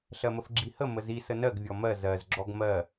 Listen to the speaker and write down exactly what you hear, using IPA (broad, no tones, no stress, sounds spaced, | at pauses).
ɬ ɜ m ə f ɡ͡ǁ i h ə m ə z i s ə n ɜ ɡ vʲ ɔ m ɜ z ɜ z ɡ͡ǁ ɔ ɡ m ɜ